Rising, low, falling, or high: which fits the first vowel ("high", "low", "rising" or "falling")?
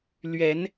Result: rising